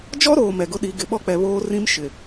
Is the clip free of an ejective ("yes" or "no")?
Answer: yes